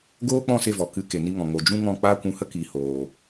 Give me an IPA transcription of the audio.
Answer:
ɡ oː˦ k͡p ɔ̃˦˨ s e˦˨ v ɔ˨ k ɨ˨˦ k e˨ n i˧ ŋ ɔ̃˨ ŋ o˨ d͡ʒ ũ˦ ŋ ɔ̃˦˨ k͡p aː˦ kʷ ũ˧ h ə˦ k iː˨ h oː˨

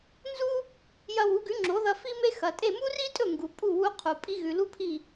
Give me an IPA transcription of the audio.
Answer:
n z u˥ | j ɐ˧ w u˩˥ ɡ ʉ˩˥ ŋ͡ǁ o˩˥ ð ɐ˧ f i˥ m e˥ x ɐ˩ tʼ e˥˩ m u˥ r i˥ tʼ ɵ˥˩ ŋ ɡ u˩ pʼ u˥˩ w u˧ qʰ u˩ pʼ i˧ ɣ ʉ˩ l u˥ pʰ i˥˩

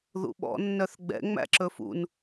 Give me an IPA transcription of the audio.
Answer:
ð ṵ ɓ ɔ̰ nː œ θ ɡ͡b ɛ̰ ŋ͡m æ̰ ǁ ɵ f ṵ n

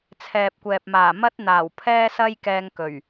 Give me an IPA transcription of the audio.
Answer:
t͡sʰ ɛː˨ p̚ kʷ ɛː˨ p̚ m aː˨˩ m ɐ˥ t̚ n̪ aː˨˩ w pʰ ɛː˥ s ɐ˥ j k ɛː˧ ŋ k ɵ˨˩ ɥ

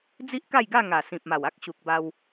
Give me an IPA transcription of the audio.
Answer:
d͡z i˦ ʔ k a˥˧ j ɡ a˥˧ ŋ a˨˩ s ĩ˨ p̚ m a˨˩ w a˦ k̚ ɕ u˨ k̚ b a˧ w

